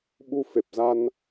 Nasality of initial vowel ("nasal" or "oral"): oral